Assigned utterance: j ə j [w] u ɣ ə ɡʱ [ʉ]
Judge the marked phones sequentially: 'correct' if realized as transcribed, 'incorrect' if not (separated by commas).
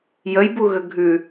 incorrect, correct